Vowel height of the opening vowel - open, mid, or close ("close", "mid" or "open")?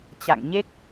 open